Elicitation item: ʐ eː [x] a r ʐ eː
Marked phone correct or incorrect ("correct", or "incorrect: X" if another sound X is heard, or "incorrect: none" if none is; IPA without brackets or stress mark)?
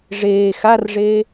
correct